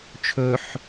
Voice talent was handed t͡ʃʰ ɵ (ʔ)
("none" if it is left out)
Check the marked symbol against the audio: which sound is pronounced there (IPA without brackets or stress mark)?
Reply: ħ